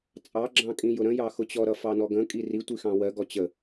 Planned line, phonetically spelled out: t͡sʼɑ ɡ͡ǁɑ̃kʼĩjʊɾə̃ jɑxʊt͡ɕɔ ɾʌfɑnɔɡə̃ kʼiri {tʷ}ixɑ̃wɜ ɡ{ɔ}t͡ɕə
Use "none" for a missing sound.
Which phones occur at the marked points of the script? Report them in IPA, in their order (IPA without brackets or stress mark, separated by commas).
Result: tʷ, ɔ